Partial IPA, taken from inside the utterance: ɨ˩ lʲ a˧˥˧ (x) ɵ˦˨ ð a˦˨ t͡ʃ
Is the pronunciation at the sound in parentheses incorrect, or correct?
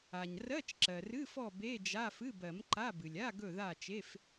incorrect